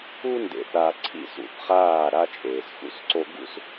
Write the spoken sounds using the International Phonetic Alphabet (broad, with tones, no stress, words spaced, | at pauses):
u˦ndḛ˨θ a˨ǀʰḭ˦˨s ṵ˨θχaː˦˨ɾa˦ t͡ʃʼeː˨sxṵ˦sǀo˦ ɡṵ˦s